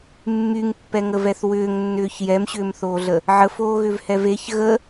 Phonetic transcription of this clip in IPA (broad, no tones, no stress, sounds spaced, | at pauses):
mː y ŋ pː ɛ ŋ ə v ɛ θ w ʏː ŋ nː ʏː ç j ɛ m ɕ ʏː m θ oː ɮ ə | ʕ ə f oː ɣ ʏ v h ɛ v e ç ɣ ə